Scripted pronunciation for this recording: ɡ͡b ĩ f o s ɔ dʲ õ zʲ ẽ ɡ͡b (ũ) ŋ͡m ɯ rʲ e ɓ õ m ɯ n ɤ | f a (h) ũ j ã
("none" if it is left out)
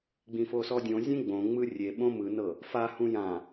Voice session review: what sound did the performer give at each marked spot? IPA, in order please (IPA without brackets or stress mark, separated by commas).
õ, h